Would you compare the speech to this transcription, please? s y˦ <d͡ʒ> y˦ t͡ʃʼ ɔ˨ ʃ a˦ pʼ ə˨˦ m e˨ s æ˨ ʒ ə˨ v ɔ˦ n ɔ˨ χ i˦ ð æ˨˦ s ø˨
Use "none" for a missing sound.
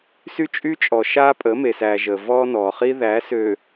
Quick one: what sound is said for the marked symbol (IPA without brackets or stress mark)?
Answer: t͡ʃʼ